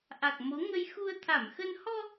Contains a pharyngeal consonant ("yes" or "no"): no